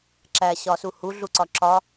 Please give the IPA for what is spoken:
ǁæɕɒsu huɮu ǀɒǁɒ

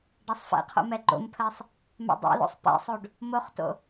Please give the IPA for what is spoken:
ɖasˤfɛ̰qʰo̰ mɛɡ͡ǃo̰mpʰɜsˤ | mɛ̰dˤɛ̰lo̰sˤ pɛ̰sˤoɖ | moχto̰

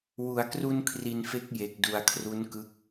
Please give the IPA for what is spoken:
wu˩˦a̯kru˧nkʰri˨˩n fe˦˥k̚je˨˩k̚du˨˩a̯kʰru˦˥n kɯ˦˥k̚

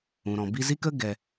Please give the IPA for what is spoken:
ũ˨ɾɔ̃˨ bi˧zi˦kə˦ ɡɛ˧

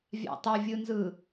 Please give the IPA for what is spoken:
vʲa̰tˤɯvʲɯnzɯ

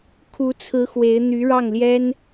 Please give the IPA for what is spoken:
kʰu˧˥t͡sʰɹ̩˧˥ xwe˧˥ɪ̯ n̪y˧˥ɻɑ˥˩ŋljɛ˥n

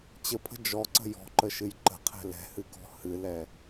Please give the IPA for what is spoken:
t͡ɕəpʰə̤ d͡ʒɔǀə̤ jɔ̤ǃəʃɨj ǃə̤qʰɛ̤ lɛ̤hɨkɔ̤ hɨlɛ

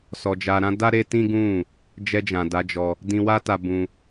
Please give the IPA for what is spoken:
sɔ˨d͡ʒa˨ɾã˧ da˦ɾe˦tĩ˦ɡũ˦˨ | d͡ʒɛ˧d͡ʒã˨ da˨˦d͡ʒɔ˧ | dĩ˧wa˦ta˧bũ˧

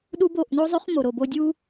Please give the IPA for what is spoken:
ɗu˦bo˦˨ʔ no˦zˤø˦χmo˨ɾo˨ bo˧dʲu˦

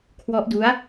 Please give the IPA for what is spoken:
kʰwɔ˦˥ʔdu˦˥a̯

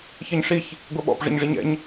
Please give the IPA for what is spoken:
çɜɲʂiç | ɡʷɛɓɔ̰p ʐə̰ɲʐiɲɛ̰ɲ

